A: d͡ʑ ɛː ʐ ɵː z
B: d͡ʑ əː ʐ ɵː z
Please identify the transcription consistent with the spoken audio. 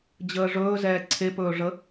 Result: B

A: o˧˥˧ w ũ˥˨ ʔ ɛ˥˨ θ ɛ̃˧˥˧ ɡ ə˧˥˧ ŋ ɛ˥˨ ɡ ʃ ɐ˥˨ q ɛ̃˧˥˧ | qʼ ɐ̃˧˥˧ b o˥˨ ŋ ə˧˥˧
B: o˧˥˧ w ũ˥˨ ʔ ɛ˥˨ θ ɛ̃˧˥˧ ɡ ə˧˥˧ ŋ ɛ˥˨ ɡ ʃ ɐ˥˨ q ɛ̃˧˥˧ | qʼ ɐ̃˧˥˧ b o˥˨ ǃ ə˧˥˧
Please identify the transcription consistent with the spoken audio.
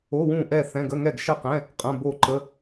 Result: B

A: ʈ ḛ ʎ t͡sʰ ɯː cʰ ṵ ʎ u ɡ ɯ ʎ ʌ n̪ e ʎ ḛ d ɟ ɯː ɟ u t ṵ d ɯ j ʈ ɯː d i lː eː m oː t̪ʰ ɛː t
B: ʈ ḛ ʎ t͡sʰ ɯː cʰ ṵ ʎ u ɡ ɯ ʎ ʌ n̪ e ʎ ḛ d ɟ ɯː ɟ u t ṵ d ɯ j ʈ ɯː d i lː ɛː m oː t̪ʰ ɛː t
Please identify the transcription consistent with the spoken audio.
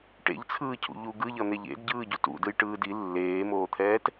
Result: A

